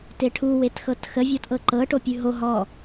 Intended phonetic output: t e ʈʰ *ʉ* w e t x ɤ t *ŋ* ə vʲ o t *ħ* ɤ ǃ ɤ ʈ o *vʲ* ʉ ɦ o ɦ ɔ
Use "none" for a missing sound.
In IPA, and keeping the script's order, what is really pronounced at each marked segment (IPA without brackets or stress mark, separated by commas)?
u, x, ʔ, pʲ